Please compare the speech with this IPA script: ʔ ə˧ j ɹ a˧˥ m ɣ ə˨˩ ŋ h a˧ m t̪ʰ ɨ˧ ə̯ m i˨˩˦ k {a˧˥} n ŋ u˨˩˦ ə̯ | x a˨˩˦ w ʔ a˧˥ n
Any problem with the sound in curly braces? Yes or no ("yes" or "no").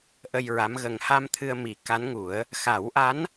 no